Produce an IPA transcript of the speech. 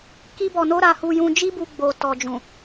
k i˦ b ɔ˧ n o˦ ɾ a˧ h u˧ j ũ˧ d͡ʒ i˦ b u˧ ɡ͡b o˨ t ɔ˨ d͡ʒ ũ˨

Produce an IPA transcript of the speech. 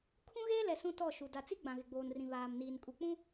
kʰ ũ˦ ɣ eː˦ l ɛ˨ s ũ˦ t ɔ˦˨ ʃ u˨ d a˨ t͡s i˦ ɡ͡b ã˨ ɣ ɪ˨ ɡ͡b oː˨ n r ĩ˨ β aː˨ m n iː˨ n kʼ u˨ k͡p ũ˦

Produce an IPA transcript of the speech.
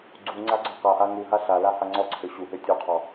ɡ͡ǀ u ŋ͡ǀ a ɡ͡ǀ ɔ q a ʔ a ŋ u ɦ a ɬ a l a h a ŋ͡ǀ ɔ ǀʰ ø ɕ u ɦ ø tʲ u qʰ ɔ

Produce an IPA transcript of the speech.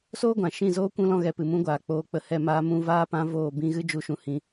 s oː˦ ɡʷ ã˨ ʃ ĩ˦˨ z oː˦ kʷ ũ˦ l ɔ̃˦ ɣ ɛ˧ p ɨ˨ m ũ˧ ɡʷ aː˨ k͡p oː˧ k͡p ə˧ h ɛ˦˨ m aː˧ m ũ˧ v aː˦ p ã˧ v oː˦˨ b ĩ˦ ɣ ɨ˦ d͡ʒ u˧ ʃ ũ˧ h ĩ˧

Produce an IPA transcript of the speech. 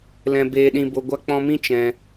l ɛ̃˧ b eː˧ ɗ ĩ˧ b o˧ ɡʷ a˦ k͡p ɔ̃˧ m ĩ˦ t͡ʃ ɛ̃˧

